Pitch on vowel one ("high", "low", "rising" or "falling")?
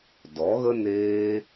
rising